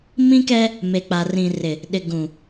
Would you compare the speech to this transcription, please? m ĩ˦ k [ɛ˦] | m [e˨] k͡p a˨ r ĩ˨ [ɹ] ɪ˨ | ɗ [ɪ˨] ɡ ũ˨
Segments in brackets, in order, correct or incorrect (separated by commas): correct, correct, incorrect, correct